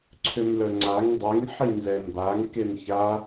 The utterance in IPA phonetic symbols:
ǀʰømlœŋ͡ǀaŋ dˤeŋ ħinzɛmbaŋ kemça

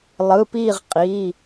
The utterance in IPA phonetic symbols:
lˠɯ˩˧˩piː˦˨ʁqʼi˩˧˩

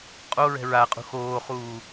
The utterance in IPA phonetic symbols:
qʼoɹɛ̤ ɹaqʼṳ xoːχuː

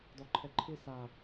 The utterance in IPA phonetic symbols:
dɔǃʰɛǃʰɪ sa

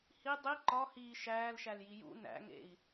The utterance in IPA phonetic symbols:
hi dˤi ǃɒhiː ʃæːlʃælji jṵ næ̰ŋḛi̯

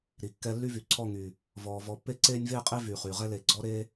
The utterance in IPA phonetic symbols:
ɾi˨kːɛ˧ lːy˦vy˨ ǀʰɔ˦˨ŋy˨ | vɔː˨vɔ˨˦pːe˦ ǀeː˦nʲveː˦qʼe˦vyː˨ χyː˨ʁɛ˦le˨ ɡ͡ǀɔ˦ɾe˦

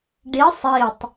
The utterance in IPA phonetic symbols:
ɖi sˤitˤ

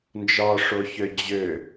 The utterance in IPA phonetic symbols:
nd͡ʒɒʂoçø d͡ʑø

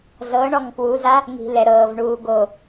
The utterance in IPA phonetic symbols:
ɮɤɳɔŋ kwuza | ŋi̤ lɛɾɤːvɳuː ɡo

